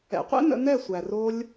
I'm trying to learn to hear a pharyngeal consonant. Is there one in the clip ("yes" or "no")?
no